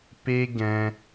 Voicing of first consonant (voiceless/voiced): voiceless